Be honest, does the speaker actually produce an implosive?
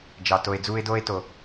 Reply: no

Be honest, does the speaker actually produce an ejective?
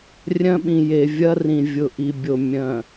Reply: no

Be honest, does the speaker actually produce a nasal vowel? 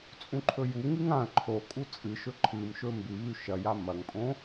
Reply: yes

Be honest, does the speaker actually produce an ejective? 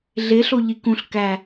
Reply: no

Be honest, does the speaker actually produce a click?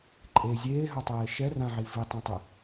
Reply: yes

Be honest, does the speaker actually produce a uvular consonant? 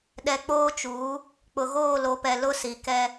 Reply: no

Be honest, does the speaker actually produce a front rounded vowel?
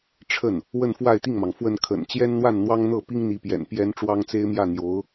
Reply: no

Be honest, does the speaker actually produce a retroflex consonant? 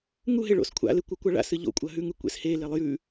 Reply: yes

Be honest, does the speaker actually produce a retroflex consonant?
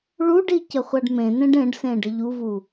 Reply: yes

